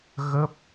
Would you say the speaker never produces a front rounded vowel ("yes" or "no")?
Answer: yes